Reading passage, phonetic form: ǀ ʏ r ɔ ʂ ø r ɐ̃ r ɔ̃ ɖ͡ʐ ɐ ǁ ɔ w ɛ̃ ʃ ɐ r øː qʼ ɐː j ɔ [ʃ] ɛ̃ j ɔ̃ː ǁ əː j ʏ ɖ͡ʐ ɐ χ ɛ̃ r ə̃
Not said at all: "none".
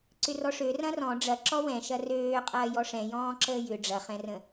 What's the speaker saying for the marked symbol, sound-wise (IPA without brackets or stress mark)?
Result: ʂ